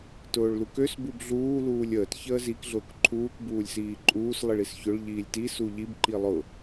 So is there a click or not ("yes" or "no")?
yes